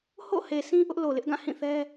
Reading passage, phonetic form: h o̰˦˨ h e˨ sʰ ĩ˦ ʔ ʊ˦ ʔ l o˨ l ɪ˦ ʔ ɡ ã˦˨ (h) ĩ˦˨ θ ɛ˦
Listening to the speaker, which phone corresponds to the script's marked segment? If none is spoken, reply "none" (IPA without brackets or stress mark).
h